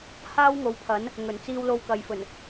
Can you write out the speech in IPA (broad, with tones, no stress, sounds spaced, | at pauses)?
h aː˥ w ŋ o˨˥ w pʰ ɐ˨˥ n | ŋ ɵ˨˩ n t͡s iː˧ w l o˧ w k ɐ˨ j f ɵ˨˩ n